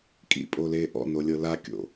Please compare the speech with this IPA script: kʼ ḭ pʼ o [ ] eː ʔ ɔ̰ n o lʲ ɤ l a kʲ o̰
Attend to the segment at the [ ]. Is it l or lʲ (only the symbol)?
l